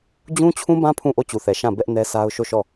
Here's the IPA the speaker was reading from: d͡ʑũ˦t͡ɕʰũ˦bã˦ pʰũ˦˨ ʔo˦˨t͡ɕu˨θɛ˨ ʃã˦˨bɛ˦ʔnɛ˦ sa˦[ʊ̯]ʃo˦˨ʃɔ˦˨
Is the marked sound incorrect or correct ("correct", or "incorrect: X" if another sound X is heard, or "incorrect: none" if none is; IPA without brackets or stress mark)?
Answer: correct